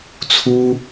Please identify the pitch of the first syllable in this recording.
high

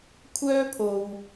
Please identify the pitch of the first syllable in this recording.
high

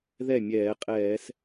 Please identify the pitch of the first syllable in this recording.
falling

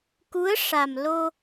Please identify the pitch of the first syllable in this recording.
rising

